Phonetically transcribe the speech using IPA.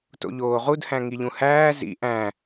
t o̰ ʎ oː ʁ u d h æ̃ ŋ i ʎ ũ h æː z ḭ ʔ æ̃

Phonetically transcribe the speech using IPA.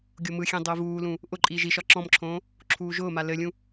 ɡʲ o m ɯ xʲ ẽ dˤ ʊː v uː l ũ | ʔ ʊ ǃʼ iː ʒ i ʃ ɒ ǁ ɔ̃ m ǁʰ õː | ǁʰ uː ʒ ʊː m a l ɘ lʲ ũ

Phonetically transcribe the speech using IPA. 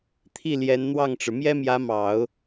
t̪ʰ i˥˩ l j ɛ˧˥ n n̪ w ɑ˥˩ ŋ ʈ͡ʂ ɻ̩˩ m j ɛ˥ m j ä˧˥ m ɑ˨˩˦ ʊ̯

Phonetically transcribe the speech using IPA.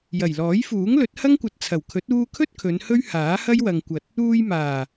j ɐ˨˩ j l ɔː˨˥ j f uː˨˥ ŋ l ɵ˨˥ t̚ h ɐ˥ ŋ kʷ ɐ˨ t̚ t͡sʰ ɐ˨˩ w kʰ ɵ˨˥ t̚ uː˧ kʰ ɵ˥ t̚ kʰ ɵ˨˧ n h ɵ˥ ɥ h aː˨˥ h ɐ˥ j w ɐ˨ ŋ kʷ ɐ˨ t̚ | uː˧ j m aː˨˩

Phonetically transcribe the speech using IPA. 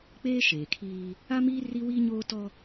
k͡p eː˦ ʃ eː˨ kʰ iː˦ | a˦ m iː˦ r i˦ w iː˦ ɲ oː˦ t ɔ˦

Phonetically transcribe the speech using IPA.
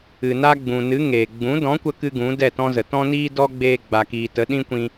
ɨ˨ n a˦ ɡ͡b ũ˨ n ɨ˨˦ ŋ eː˨ ɡ͡b ũ˨˦ d ɔ̃˨˦ kʷ ə˦ k ɨ˦ ɡ ũ˨˦ d ɛ˦˨ t ɔ̃˦ z ə˨ t ɔ̃˦ n iː˦ d ɔ˦ ɡ͡b eː˦ ɡ͡b a˨ k iː˨ t ə˨˦ ɗ ĩ˦ kʷ ĩ˧

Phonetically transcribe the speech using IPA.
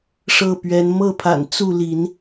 ʂ ɤ˥˨ p ɥ ɛ˨˦ n m ɤ˥˨ pʰ a̰˨˩ n t͡s u˥˨ l i˨˦ n

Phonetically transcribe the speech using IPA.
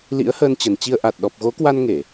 l ḭ˧˥ ə̯ h əː˧ n t͡ɕ ə˨˩ n t͡ɕ i˧ ə̯ ʔ a˨˩ t̚ ɗ ɔ˨˩ p̚ ɣ o˨˦ k w a˧ n ŋ e˧˩˨

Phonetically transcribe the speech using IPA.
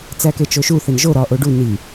t͡s æ k e t͡ʃ o ʃ u θ e n ʒ o ɾ ɒ ʔ o ɖ u n i

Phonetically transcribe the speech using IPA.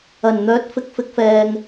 ɐ˨˩ n n̪ œː˨˥ t̚ f ɪ˨˥ k̚ f ɪ˨˥ k̚ f ɛː˨ ŋ

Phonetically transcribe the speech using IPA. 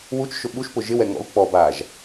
w u t͡ʃ ʃ ʊ ɓ u ʃ p ʊ ʒ ɪ w ɛ ŋ ɔ̰ u̯ k͡p ɔ b aː ʒ

